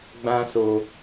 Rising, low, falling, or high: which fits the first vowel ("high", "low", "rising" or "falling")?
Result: high